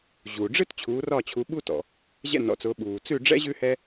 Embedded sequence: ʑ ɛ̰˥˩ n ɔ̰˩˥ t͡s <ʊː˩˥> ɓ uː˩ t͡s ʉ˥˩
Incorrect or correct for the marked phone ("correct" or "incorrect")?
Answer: correct